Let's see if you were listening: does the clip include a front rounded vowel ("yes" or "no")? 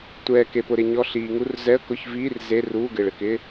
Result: no